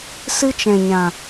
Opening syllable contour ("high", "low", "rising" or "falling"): high